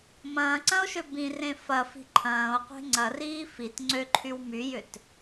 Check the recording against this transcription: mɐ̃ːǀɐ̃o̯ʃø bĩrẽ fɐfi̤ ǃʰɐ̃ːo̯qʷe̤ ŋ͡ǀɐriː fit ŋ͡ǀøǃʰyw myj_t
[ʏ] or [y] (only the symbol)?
ʏ